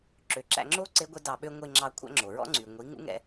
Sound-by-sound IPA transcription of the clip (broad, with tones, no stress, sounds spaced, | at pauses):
ǁ ø˨ ǁ æ̰˧ ŋ͡ǁ o˦ ǀ e˦ ɡʷ ɛ˦ d ɑ˧ ɓ ø˦ ŋʷ e˧ ŋ͡ǁ ɑ˧ kʷʰ æ̰˦ ŋ͡ǁ o˨ ɹ ɔ̰˦ ŋ͡ǀ y˨ ŋʷ i˨˦ ŋ ṵ˦ ŋ ɛ̰˧